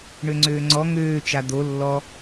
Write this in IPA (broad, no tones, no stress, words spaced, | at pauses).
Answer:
ɳøŋ͡ǀøːŋ͡ǀɔ ŋøː t͡ʃad̪o lːɔ